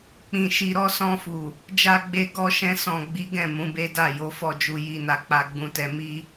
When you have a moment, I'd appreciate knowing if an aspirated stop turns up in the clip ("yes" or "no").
no